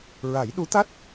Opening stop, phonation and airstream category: implosive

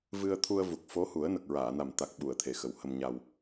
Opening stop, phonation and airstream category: aspirated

